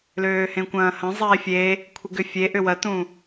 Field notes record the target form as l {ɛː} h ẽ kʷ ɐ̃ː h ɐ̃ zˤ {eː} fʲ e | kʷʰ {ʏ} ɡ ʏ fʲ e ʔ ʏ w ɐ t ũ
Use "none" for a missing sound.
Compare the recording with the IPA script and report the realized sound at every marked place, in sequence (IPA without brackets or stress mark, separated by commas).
øː, eː, ɪ